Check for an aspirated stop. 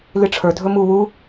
present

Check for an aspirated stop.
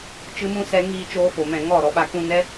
absent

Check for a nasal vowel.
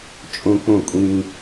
present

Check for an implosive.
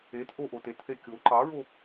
absent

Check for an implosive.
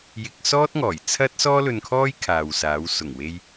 absent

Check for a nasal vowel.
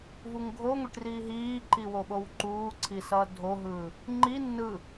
absent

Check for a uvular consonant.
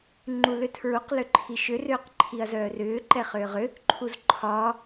present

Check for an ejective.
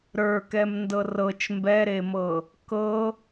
absent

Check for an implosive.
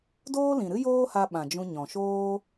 present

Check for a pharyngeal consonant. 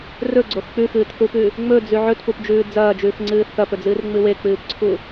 present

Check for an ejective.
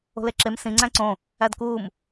absent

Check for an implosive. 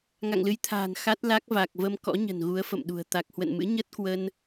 present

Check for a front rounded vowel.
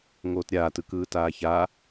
absent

